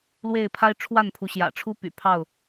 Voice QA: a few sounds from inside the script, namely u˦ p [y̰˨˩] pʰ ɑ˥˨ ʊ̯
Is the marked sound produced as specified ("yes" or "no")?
yes